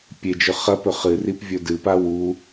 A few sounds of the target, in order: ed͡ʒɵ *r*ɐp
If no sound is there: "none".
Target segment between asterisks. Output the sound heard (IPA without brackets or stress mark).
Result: χ